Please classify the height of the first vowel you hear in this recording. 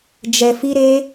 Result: mid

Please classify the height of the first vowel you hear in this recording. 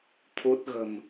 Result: high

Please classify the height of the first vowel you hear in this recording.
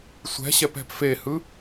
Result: mid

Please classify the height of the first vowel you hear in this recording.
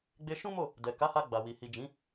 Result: mid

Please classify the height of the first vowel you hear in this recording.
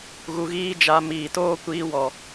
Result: high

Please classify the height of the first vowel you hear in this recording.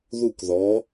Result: high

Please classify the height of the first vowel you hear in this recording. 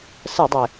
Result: mid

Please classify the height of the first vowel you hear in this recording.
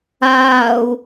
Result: low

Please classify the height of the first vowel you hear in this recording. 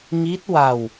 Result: high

